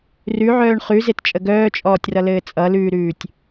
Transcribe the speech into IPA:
r ʉ ʕ œː ɳ χ ʉ z e t t͡ʃʼ ə ɡ œː t͡ʃʼ ɔː tʲ r ʌ l ɘː t͡sʼ ʌ l ʉː ɾ ʉː tʲ

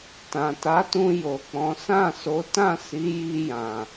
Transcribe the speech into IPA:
t ã˨ t a˨˦ t ũ˧ j o˨ k͡p ɔ̃˨˦ s ã˦˨ s o˨˦ t ã˦˨ s i˨˦ j i˧ j ã˨

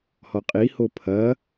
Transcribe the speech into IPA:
h ɔ qʼ i h o pʰ ɐ

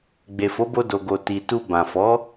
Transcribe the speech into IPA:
ɡ͡b e˨ f o˨˦ b o˧ d o˨ ɡ o˨ t i˨ t u˧ b ã˨ f ɔ˨˦

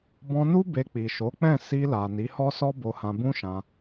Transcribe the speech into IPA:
b ɔ̃˧ n u˦ b e˧ k͡p i˨ ʃ o˨˦ k͡p ɛ̃˦˨ s i˧ l a˨ n i˨˦ h ɔ˦ s ɔ˦ b o˧ h ã˧ b ũ˦ ʃ ã˧

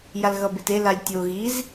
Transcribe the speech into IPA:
j a l ɣ ʌ b e t e l a lʲ tʲ o ɣ i z

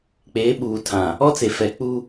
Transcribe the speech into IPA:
k͡p eː˨˦ ɓ uː˨ tʰ ã˨ | ɔ˦ t͡s e˨ f ɛ˨˦ k͡p u˦

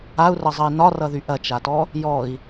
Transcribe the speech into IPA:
a u̯ r ʌ zˤ ɐ i̯ n ɒ r ʌ ð y ʔ ɐ t͡ʃ a t ɔ | j ɔ i̯

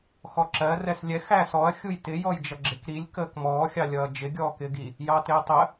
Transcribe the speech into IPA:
x ɔ ǁ ɜ r ɛ s lʲ ɛ x æ s ɔ ɐ̯ xʲ u j t ɪ j ɔ j d͡ʒ ʌ ɡ͡ǁ ɪ k ɾ i lʲ k əː k m ɔː xʲ ɑ lʲ ʌː d͡ʒ ɪ ɡʲ ɔː k ɪː ɡ i | j ɑ t ɪː tˤ ə

